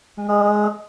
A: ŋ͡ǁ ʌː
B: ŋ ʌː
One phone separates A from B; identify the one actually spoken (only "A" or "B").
B